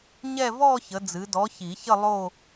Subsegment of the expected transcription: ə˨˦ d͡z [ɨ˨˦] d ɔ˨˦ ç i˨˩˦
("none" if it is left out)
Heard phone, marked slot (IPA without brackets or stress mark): ɨ˨˦